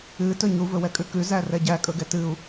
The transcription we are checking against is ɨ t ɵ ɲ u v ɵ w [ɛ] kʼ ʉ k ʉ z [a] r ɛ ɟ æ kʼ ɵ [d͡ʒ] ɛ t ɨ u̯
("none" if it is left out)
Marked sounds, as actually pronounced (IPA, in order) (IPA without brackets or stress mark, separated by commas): ɛ, æ, ɡ